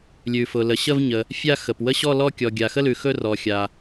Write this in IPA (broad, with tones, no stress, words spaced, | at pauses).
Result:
lʲʉ˩fʊ˩lə˩ɕə˥˧v ɲə˩ | fʲa˥˧ xə˩pwə˥˧ɕɔ˥˧ lɔ˥˧ kʲɔ˩ɡʲa˩xə˥˧lʉ˩ xɵ˥˧rɔ˩xʲa˩